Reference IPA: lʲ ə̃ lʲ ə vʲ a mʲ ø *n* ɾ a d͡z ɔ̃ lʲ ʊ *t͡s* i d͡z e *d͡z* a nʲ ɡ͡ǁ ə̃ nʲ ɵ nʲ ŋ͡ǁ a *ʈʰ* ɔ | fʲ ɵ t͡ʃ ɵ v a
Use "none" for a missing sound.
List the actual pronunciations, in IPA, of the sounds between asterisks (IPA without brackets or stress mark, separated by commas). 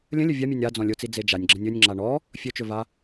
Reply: nʲ, t͡s, d͡ʒ, ɳ